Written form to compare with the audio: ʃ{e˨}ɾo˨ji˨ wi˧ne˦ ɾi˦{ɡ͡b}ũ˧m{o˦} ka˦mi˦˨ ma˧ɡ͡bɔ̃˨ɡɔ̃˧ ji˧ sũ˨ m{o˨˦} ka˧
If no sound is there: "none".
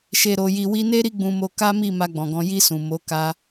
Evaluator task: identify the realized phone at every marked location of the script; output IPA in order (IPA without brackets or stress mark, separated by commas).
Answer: e˨, ɡ͡b, o˧, o˨˦